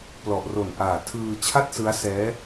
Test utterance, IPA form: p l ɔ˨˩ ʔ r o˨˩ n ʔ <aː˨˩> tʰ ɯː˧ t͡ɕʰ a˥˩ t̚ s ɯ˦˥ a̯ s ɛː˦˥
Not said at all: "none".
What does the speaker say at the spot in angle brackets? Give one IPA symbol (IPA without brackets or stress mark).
aː˨˩